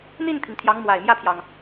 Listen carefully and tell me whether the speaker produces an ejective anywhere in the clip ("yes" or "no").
no